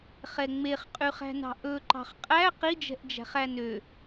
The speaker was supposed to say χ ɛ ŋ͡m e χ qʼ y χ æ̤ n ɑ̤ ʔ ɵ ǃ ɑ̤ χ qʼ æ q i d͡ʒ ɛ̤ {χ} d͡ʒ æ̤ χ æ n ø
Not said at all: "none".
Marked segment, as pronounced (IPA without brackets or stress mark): ʔ